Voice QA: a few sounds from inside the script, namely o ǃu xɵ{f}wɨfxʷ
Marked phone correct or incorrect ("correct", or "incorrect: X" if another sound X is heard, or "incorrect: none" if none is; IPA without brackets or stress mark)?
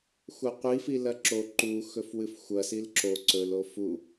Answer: correct